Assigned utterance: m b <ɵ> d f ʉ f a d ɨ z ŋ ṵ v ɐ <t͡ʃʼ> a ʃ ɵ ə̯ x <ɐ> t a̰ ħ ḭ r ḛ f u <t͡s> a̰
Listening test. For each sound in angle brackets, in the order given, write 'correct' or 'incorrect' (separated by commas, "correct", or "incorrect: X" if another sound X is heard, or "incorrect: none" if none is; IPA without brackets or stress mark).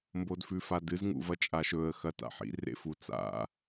incorrect: o, correct, correct, correct